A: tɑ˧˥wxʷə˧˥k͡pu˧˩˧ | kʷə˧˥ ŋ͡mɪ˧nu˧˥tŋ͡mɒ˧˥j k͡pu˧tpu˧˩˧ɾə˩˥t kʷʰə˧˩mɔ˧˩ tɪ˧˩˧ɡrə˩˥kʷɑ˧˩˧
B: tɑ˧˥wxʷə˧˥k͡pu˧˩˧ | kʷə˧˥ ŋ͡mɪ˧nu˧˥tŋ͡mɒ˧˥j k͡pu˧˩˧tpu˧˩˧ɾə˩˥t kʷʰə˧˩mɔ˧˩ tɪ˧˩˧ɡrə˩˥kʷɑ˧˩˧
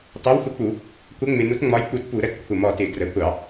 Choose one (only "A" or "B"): A